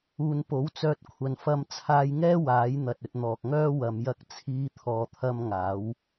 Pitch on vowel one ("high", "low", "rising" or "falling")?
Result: low